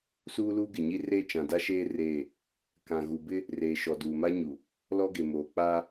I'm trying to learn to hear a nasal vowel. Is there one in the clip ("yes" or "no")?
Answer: yes